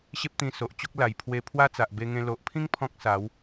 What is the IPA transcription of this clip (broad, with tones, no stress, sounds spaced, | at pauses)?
ɕ e˦ p̚ t̪ ĩ˧ s o˨ ʔ t͡ɕ o˦ k̚ l a˨˩ j pʰ w e˧ pʰ w a˦ t͡s a˨ ʔ b e˧ ŋ ẽ˧ l o˨ ʔ pʰ ĩ˦ ŋ pʰ ɔ̃˦ k̚ s a˨˦ w